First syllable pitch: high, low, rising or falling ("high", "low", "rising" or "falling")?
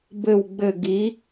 falling